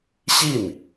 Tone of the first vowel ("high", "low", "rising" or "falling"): falling